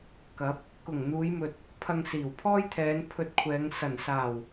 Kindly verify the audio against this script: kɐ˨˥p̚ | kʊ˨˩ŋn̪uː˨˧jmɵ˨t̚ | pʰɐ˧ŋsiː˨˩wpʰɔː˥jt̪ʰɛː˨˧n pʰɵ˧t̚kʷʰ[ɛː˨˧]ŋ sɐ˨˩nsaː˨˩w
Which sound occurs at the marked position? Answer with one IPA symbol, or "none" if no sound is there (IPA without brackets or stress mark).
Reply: ɛː˨˧